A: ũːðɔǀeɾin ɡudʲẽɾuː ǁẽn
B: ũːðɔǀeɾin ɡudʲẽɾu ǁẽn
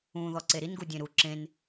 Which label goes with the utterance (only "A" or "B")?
B